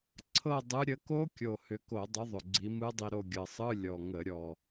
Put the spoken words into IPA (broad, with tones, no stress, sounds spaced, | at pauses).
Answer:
ǀʰ ɤ˦˨ dˤ ɯ˨˦ ɾʲ ə˨˦ k o˦˥ kʲ o˨˩ h ʏ˨˦ k o˧˩˧ dˤ ʏ˨˦ ðˤ ʏ˨˩ ɡ͡ǀ i˨˦ m ɯ˦˥ dˤ i˦˨ ɾ o˦˨ ɡʲ ɤ˨˩ sˤ ɯ˧˥˧ lʲ ɔ˨˩ ŋ ə˧˩˧ ɾʲ ɔ˨˩